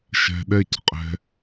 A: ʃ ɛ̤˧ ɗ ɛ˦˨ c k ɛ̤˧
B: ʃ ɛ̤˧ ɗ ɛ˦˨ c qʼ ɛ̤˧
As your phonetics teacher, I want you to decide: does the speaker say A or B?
B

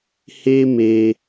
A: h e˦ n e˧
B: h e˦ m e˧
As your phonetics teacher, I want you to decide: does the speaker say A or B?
B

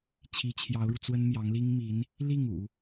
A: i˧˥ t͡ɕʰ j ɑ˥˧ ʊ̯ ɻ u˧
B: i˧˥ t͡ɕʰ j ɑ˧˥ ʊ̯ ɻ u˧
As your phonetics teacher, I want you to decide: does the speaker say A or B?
B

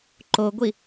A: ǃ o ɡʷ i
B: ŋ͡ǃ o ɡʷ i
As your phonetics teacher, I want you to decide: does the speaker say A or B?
A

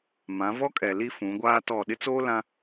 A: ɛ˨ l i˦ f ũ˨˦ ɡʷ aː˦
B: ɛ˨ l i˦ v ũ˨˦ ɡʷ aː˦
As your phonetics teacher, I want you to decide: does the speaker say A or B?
A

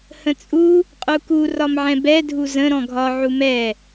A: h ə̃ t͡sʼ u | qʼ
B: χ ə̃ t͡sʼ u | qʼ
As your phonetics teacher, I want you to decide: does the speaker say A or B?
A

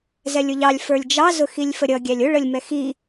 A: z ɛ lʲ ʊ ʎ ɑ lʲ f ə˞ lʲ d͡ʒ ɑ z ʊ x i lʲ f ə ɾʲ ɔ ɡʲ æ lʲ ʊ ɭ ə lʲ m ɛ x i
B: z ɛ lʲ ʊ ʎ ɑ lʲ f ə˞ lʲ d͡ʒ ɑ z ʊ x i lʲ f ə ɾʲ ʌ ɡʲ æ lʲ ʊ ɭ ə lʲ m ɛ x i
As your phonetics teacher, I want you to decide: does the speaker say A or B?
B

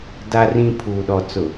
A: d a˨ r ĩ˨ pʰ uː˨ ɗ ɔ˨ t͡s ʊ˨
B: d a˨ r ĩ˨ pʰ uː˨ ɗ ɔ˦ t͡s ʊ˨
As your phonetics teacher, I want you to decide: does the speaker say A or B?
A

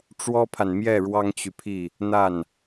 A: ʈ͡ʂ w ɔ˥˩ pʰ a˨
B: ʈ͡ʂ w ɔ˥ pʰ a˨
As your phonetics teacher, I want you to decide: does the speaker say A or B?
B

